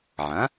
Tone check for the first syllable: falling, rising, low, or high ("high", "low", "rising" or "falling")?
rising